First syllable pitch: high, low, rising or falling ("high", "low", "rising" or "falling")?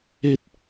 high